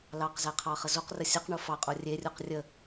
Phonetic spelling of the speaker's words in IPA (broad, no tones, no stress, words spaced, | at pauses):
lɑqzæqʰɑχə zoqrə sʲəqɳo fɑqʼo rʲerʲuq rʲə